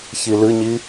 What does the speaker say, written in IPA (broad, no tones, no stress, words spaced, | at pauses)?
çilɨɲi